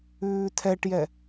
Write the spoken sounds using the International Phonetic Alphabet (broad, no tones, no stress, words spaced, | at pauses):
ʉːtʰɛʈjɛ